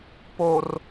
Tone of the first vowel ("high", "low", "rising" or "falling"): low